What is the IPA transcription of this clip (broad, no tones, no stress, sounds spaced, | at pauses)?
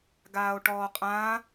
ɡ aː o̯ ʈ ɔː qʼ ã